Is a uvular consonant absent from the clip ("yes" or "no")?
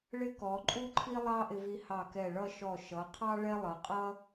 no